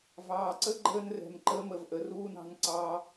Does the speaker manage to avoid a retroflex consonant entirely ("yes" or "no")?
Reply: yes